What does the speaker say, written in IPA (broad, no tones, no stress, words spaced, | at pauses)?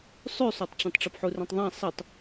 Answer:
sˤʉsˤotˤt͡ɕɐ̃tˤ ʈ͡ʂɨpħurĩtˤðˤã sˤitˤ